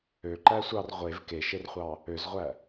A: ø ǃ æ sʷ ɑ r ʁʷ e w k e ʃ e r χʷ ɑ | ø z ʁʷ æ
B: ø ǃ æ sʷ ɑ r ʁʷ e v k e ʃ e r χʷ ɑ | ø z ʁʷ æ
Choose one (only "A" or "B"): B